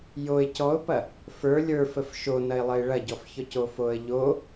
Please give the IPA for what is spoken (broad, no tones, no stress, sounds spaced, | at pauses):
j o ɪ̯ c ɔ ʊ̯ p ɐ | f ə˞ lʲ ə˞ f ə f ʃ o n ɐ ɪ̯ lˠ ə ɪ̯ ɭ ɐ ɟ ɔ f ç ɔ c o f o ə̯ ʎ o